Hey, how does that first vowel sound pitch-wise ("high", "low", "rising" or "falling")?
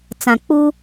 low